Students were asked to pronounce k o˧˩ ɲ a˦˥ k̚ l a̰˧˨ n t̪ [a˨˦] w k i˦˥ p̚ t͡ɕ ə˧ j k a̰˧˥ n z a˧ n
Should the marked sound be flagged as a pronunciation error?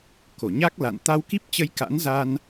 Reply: yes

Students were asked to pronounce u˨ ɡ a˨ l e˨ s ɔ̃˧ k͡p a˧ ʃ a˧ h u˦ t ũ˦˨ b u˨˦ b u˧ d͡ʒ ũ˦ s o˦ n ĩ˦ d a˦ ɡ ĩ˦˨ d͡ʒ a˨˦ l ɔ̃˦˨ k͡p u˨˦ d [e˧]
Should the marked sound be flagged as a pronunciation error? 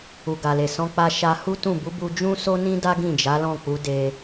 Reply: no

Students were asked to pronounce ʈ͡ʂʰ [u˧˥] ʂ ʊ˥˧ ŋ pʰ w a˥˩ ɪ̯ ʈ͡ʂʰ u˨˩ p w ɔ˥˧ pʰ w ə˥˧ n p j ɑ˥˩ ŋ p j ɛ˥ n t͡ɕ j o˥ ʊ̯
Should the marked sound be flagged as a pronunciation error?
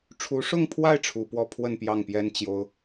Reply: no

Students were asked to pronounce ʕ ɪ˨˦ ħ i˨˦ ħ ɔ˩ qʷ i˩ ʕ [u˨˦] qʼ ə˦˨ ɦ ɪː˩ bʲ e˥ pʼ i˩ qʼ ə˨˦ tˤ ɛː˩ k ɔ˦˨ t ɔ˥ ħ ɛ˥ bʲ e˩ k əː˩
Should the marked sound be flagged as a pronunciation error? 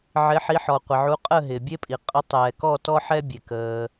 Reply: no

